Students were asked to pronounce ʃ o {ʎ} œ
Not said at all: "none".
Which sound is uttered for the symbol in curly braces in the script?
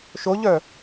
ʎ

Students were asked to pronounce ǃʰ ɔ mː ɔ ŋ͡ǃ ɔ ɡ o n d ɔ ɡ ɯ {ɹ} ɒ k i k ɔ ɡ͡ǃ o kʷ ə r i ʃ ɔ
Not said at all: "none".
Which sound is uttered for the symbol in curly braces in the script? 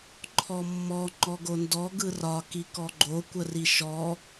r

